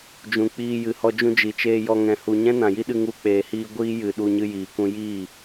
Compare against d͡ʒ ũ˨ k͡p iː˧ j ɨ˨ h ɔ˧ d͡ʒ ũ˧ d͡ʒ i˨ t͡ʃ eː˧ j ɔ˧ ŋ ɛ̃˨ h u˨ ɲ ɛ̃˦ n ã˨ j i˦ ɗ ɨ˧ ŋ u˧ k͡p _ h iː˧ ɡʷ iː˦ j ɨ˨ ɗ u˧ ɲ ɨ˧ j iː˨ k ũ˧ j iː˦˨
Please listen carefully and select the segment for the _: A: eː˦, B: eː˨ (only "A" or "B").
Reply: B